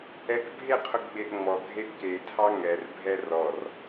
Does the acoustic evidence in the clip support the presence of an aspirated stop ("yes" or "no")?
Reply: yes